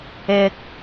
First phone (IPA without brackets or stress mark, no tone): ɪ